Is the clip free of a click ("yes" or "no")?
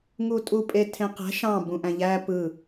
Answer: yes